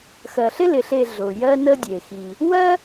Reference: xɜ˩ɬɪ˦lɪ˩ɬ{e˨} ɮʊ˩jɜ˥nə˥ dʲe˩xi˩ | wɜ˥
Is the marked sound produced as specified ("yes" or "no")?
yes